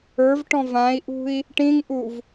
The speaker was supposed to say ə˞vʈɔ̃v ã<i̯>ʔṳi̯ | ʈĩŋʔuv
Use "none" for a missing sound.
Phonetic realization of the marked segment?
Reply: i̯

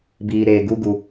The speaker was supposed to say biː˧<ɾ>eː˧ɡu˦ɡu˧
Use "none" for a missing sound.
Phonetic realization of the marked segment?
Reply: ɾ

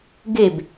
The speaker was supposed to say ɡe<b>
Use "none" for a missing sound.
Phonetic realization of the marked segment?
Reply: b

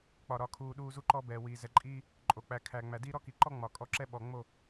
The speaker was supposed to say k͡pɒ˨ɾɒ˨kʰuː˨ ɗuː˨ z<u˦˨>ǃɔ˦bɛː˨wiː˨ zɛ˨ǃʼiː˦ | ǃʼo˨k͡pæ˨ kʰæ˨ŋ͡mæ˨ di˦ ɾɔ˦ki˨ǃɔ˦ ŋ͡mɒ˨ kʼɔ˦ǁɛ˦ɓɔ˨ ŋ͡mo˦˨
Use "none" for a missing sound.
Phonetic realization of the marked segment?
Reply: u˦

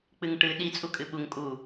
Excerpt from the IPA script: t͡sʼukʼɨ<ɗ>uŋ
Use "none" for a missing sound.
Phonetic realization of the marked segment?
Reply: ɓ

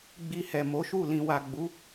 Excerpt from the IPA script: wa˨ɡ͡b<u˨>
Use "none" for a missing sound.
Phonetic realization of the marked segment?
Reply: u˨˦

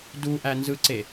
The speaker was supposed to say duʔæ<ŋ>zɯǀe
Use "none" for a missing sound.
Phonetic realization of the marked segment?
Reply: n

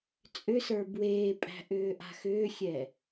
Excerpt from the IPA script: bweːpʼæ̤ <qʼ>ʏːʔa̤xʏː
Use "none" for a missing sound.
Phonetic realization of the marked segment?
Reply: ʔ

